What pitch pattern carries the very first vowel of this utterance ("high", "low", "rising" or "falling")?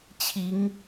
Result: rising